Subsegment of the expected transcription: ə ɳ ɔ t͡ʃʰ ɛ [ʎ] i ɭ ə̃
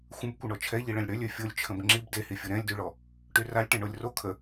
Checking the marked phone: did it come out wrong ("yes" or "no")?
no